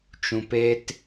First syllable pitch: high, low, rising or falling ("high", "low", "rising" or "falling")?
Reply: low